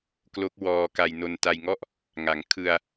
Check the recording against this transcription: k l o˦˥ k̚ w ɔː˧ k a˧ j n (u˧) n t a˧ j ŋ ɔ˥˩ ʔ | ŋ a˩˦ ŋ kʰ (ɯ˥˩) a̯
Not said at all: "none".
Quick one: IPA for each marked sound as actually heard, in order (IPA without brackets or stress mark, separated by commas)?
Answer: o˧, ɯ˧